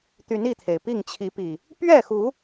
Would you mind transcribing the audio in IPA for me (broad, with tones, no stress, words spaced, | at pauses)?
t̪y˨˦ni˥˨t̪ʰe˩ɪ̯ pi˥˨ŋt͡ɕʰi˨˦pi˨˩ | pɥɛ˥˨xu˨˦